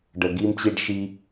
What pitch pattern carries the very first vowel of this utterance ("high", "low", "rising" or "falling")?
low